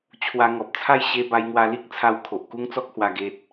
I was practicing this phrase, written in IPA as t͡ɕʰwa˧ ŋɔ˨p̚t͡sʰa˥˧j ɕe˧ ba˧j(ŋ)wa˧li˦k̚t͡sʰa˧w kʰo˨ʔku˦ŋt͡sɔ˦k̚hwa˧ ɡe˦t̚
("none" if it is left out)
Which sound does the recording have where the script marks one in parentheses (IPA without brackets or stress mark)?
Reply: ŋ